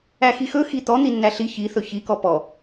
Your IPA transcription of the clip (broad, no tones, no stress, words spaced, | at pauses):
æxixɵ xit̪ɔ n̪inːæɬi çiθɵ çikɔ pɔ